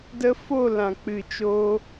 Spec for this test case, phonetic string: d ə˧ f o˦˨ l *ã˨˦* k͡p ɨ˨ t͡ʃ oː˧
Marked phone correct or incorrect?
incorrect